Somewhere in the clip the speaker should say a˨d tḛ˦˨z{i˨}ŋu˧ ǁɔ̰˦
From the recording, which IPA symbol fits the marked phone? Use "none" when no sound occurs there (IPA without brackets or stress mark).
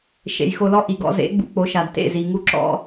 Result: i˨